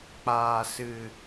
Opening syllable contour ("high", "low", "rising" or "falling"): low